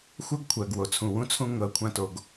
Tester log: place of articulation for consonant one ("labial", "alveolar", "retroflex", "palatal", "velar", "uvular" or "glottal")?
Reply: velar